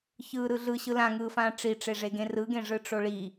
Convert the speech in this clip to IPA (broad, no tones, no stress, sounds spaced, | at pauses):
ç ɯː ɾ ɯ ɮ ɯ ɕ ɯ l ã ŋ ɯː f ãː ʈ͡ʂ i ʈ͡ʂ e ʐ e ɡ ẽ r ɯ ɡ ẽ ʐ ɯ ʈ͡ʂ o ɭ i